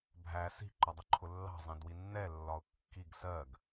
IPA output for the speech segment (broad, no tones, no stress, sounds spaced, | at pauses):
bʱ æ s i̤ ǃ ɒ dˤ ə ǃʰ ʊ lː ɑ̤ zˤ ĩ d w i nː ɛ lː ɒ ʊ̯ kː i ɡ s ɜ ɡ